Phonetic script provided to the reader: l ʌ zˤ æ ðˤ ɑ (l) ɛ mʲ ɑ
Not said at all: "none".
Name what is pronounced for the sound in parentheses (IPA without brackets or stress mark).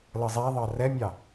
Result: r